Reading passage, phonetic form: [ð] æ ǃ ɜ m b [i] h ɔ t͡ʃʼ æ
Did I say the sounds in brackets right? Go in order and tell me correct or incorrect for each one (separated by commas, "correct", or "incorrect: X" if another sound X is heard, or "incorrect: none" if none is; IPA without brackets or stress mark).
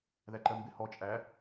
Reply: correct, incorrect: ɪ